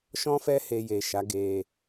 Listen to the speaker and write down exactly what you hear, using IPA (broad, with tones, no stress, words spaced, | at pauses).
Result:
ʃɔ̃˦fɛ˦ he˧je˨ʃa˨˦ɡe˧